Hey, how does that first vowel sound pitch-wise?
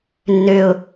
high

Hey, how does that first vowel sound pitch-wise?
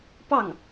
falling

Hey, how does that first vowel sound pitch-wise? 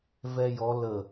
high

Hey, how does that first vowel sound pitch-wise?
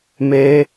high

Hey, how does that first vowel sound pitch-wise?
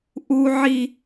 high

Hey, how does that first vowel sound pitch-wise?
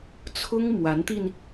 high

